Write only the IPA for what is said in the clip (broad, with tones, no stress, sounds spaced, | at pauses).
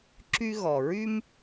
ǁ y˦ ɣ ɔ˩ ɹ y˦ m